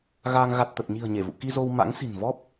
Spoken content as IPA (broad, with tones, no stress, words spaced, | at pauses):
ɣaː˧ŋ ɣa˨˩t̚ t̪ə˨˩t̚ɲi̤˨˩ə̯ ɲe˧˩vṵ˧˨ki˧ zo˧wma̰˧˥ŋsi̤˨˩n vɔ˦˥p̚